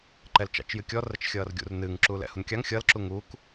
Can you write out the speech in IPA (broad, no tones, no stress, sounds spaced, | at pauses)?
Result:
ǃ ɛ l t͡ʃ ɑ̰ t͡ʃ j ɨ kʲ ɔ r ə t͡ʃ xʲ ʌː r ɡʲ ṵ r n ɨː ŋ ǁ uː l ɛ̰ h u n kʲ ɑ ŋ xʲ ʌ l ǁ u ŋ u k